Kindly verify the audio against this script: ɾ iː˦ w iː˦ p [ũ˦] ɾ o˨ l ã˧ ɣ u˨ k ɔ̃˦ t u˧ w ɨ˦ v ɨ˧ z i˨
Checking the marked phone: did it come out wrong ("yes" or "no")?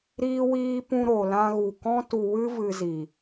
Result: yes